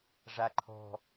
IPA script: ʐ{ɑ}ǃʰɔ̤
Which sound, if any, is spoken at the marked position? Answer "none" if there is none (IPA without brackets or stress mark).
a